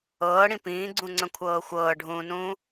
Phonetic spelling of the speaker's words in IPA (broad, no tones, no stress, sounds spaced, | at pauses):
ɤː ɽ ĩ p ĩː ɡ͡ǀ ũ ŋ͡ǀ ə̃ kʷʰ ɤː xʷ ɤː ɖʱ ũː n ũː